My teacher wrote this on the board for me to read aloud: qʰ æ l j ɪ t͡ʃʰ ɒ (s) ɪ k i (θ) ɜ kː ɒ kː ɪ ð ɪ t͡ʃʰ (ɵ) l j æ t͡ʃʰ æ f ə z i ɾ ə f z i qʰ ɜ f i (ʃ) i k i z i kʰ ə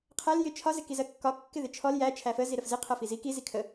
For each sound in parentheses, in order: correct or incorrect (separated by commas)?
incorrect, incorrect, incorrect, incorrect